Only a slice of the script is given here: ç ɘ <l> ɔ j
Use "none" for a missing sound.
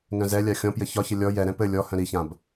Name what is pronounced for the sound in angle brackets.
lʲ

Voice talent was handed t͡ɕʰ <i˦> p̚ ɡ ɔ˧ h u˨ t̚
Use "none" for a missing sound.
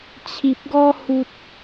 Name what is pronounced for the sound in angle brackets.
i˨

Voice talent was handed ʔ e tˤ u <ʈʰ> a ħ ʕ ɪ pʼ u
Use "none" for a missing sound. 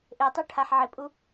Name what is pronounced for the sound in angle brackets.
ʈʰ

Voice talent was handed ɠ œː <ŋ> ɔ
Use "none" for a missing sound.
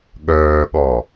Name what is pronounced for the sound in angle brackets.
ɠ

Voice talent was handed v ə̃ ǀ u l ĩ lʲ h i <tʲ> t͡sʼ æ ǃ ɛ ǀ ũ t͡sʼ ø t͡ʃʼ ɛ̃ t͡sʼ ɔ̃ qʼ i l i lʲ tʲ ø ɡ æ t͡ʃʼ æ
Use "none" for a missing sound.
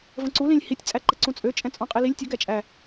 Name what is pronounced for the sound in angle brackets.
tʲ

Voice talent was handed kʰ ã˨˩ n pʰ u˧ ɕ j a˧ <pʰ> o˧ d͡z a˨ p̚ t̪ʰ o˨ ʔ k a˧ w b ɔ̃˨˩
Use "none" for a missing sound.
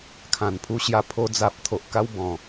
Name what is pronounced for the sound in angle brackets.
pʰ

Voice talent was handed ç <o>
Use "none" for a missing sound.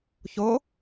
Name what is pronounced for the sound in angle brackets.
o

